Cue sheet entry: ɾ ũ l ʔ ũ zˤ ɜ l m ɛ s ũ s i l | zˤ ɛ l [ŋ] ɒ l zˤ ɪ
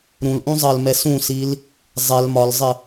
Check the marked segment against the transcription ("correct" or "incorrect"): incorrect